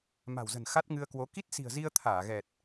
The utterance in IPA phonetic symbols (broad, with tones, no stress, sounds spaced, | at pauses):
m a̤˨˩ w z ə̤˨˩ n x a˦˥ t̚ ŋ ɨ˧ ə̯ k w o˨˦ k i˦˥ t̚ s i̤˨˩ ə̯ z i˧ ə̯ t̪ʰ aː˧˩ ɣ ɛ˨˩ t̚